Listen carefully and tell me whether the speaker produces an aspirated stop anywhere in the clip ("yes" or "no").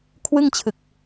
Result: yes